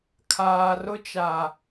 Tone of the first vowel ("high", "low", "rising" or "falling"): low